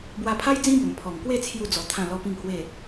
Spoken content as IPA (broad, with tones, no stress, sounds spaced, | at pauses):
b w a˧ pʰ a˦ j d͡z ĩ˦ b ə˨˩ m pʰ ɔ˨˩ ŋ k w e˥˧ t͡sʰ j u˥˧ d͡z ɔ˧ t̪ʰ ã˥˧ l ɔ˦ p ĩ˥˧ ŋ h w e˥˧